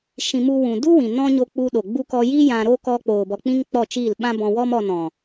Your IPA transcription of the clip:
ʃ ĩ˧ m u˦ w ũ˨ d u˦ w ĩ˨ n ɔ̃˦ ɲ o˧ k͡p u˧ ɗ o˨ ɡ͡b u˧ k ɔ˧ j i˦ j ã˧ ɾ oː˦ k ɔ˧ k͡p oː˨ b ɔ˨ k͡p ĩ˧ ŋ k͡p ɔ˦˨ t͡ʃ iː˦˨ l ɓ ã˦ b ɔ̃˧ w ɔ˦ m ɔ˧ n ɔ̃˨

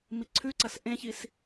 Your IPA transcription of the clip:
m i ǀʰ ʉ ǀ ɐ s ʔ ẽ ç i s

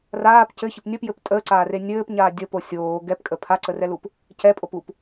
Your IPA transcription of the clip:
r aː p c ɘ ç ɘ p nʲ ə p j ɘ p tʼ əː ǀ aː r e nʲ ɘː p ɲ aː dʲ ə p o sʲ oː ɡ ɛ p kʼ ə pʰ a ǀ ə r ɛ l u p | c ɛ pʼ o p u p

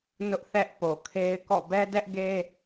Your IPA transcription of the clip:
n ʊ˦ ʔ θ ɛ˦ ʔ p o˨ kʰ e˦ ɪ̯ k ɔ̰˦˨ b ɛ˦ d ɛ˦ ʔ ɡ e˦

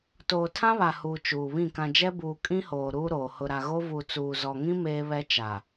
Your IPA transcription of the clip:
t oː˨ tʰ ã˦ β a˨ h uː˨ t͡ʃ uː˨ β ĩ˦˨ k ã˨ d͡ʒ ɛ˦ b uː˨ kʼ ĩ˦ h oː˨ ɾ uː˦ ɾ oː˨ h ʊ˨ ɾ a˨ ɣ o˦ v u˨ t͡s uː˨ z ɔ˨ ŋ ĩ˦ m eː˦ β ɛ˦ t͡ʃ a˨

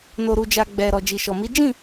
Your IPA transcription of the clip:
n o˨ ɾ u˨ d͡ʒ a˨ ɡ͡b ɛ˨ ɾ ɔ˨ d͡ʒ i˨ ʃ ɔ˨ m i˨˦ d͡ʒ ĩ˦˨

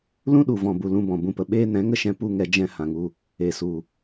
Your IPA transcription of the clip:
l ũ˦ ɗ u˨ v ɔ̃˨ b u˨ l ũ˧ b ɔ̃˨ b ũ˧ p ə˨ ɓ eː˦ n ɛ̃˨˦ ŋ ə˦ ʃ ɛ̃˧ p u˦ ŋ ɛ˧ d͡ʒ ɛ̃˦ h ã˧ ŋ u˦ | e˨ s u˨

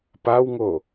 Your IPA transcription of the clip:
p a w ŋ o

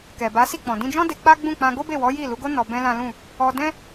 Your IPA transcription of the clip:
k ɛ˨ b a˨˦ s i˦˨ k͡p ɔ̃˨ d ĩ˧ d͡ʒ ɔ̃˦ d e˧ k͡p a˦ ɡ͡b ũ˦˨ k͡p ã˧ ɡ o˦ b e˦˨ w ɔ˨˦ j i˦˨ l u˨˦ ɡ o˦ n ɔ˧ b ɛ̃˦ l ã˦ l ũ˦˨ | ɔ˧ d ɛ̃˦

